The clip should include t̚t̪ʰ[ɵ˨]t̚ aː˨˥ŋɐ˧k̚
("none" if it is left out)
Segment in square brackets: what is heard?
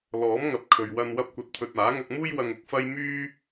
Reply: ɵ˨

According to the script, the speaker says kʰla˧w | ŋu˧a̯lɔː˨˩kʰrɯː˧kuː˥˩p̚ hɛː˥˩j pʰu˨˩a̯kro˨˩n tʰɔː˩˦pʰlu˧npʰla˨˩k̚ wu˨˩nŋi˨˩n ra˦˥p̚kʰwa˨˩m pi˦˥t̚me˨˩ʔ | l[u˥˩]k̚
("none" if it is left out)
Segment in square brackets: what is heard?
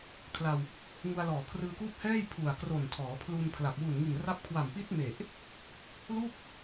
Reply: u˥˩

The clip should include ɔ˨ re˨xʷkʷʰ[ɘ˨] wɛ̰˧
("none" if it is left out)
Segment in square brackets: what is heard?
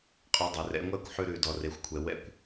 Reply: ɛ˨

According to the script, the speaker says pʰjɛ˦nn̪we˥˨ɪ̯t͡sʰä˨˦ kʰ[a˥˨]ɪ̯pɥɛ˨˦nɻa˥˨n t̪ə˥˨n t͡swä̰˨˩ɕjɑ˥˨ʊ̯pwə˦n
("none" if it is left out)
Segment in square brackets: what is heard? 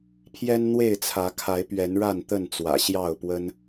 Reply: a˨˦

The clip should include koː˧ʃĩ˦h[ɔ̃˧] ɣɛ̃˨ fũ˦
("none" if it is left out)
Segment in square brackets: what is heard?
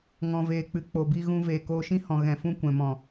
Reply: ɔ̃˨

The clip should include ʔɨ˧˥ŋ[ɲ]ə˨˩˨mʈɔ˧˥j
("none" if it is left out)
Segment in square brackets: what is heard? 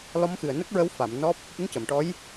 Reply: c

